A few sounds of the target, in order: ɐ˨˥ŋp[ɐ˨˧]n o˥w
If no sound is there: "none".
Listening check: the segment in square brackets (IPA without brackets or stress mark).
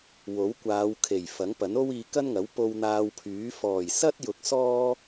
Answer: ɐ˨˥